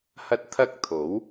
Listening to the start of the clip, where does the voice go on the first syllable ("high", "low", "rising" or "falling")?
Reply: high